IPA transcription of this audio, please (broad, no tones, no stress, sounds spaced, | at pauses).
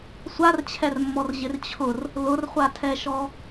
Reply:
sʷ a r t͡ɕʰ ɛ r mː ɔ r ʑ ɪ r t͡ɕʰ ʊ r | l ʊ r χʷ a tʰ ɛ ʃ ɔ